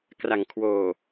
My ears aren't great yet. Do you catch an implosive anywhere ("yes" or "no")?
no